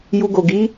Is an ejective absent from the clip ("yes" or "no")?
yes